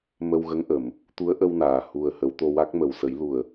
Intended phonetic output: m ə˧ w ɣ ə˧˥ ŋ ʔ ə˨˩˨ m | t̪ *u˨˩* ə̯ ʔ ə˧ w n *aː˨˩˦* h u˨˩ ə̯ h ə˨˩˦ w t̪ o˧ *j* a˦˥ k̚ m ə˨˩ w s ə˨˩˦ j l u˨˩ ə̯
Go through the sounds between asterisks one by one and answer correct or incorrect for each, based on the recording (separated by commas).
incorrect, incorrect, incorrect